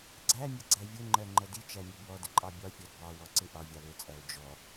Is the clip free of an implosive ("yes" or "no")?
yes